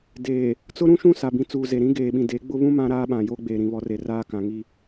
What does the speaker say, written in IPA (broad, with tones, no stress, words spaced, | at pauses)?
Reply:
deː˨ | t͡sʊ˦ɾũ˦ʃũ˦˨ sa˨bĩ˨t͡suː˨ze˨ ɾĩ˦ɡeː˨ɓĩ˨ de˨˦ɡ͡bʊ˦βũ˦ mã˦ɾaː˦ɓã˨jo˦ ɡ͡beː˨ɾĩ˨βɔ˨˦re˨ raː˦ kã˨ŋi˦